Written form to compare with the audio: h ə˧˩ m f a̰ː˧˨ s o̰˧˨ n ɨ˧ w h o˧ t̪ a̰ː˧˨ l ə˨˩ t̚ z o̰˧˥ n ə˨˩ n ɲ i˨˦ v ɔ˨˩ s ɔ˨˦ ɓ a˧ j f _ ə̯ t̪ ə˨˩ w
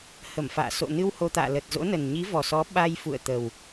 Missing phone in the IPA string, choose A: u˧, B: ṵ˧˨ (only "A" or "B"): B